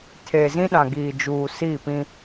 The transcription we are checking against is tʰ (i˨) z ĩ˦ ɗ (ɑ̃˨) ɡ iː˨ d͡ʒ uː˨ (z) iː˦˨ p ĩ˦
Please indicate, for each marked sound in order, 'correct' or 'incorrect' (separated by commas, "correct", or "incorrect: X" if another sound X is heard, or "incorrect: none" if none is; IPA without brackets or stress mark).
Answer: incorrect: e˨, incorrect: ã˨, incorrect: s